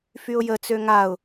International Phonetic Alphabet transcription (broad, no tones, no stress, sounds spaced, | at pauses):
f y ʊ̯ j ə t͡s ø ŋ a ʊ̯